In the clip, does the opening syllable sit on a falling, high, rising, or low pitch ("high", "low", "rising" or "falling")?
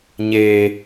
low